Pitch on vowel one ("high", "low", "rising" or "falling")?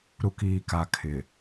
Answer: low